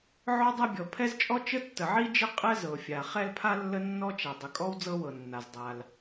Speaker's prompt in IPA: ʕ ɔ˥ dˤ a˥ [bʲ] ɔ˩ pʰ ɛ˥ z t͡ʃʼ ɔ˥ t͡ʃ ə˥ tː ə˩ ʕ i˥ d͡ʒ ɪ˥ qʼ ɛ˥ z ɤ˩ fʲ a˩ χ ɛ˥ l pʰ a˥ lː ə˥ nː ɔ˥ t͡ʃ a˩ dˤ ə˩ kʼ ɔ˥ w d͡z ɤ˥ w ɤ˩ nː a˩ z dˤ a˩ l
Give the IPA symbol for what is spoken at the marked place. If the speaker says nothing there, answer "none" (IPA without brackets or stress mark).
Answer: bʲ